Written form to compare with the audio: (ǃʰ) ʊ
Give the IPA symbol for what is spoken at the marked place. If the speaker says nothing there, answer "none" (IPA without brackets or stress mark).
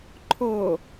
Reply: ǃʰ